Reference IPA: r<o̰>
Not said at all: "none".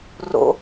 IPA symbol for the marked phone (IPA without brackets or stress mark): o̰